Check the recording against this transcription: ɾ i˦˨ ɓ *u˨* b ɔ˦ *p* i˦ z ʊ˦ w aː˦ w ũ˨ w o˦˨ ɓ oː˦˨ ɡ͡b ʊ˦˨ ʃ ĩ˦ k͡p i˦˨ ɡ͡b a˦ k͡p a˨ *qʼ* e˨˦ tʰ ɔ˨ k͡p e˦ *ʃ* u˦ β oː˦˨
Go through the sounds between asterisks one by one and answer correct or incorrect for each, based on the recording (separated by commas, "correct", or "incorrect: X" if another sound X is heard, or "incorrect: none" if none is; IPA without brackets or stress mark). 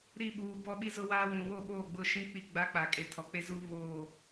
incorrect: uː˨, incorrect: ɓ, incorrect: kʼ, incorrect: z